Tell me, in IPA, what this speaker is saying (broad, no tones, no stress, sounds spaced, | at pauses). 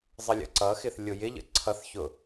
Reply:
zˤ ə lʲ ə̰ ǀ ʌ x ɪ θ lʲ ʊ j ɪ ʎ ə̰ ǀʰ ʌ θ ç ʊ